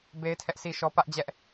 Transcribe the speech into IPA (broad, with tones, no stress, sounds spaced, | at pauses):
b e˦ ɪ̯ tʰ ɛ˦ ʔ sʰ i˦ ʃ ɔ˦ p ä˦ ʔ d͡ʑ ɛ˦ ʔ